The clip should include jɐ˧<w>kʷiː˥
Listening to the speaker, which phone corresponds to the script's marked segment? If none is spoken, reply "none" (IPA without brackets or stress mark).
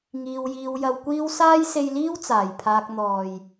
w